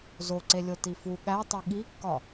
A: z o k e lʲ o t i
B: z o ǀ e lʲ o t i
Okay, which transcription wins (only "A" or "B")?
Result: B